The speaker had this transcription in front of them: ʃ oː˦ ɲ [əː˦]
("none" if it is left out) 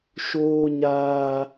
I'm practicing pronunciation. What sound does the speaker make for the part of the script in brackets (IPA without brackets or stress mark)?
aː˦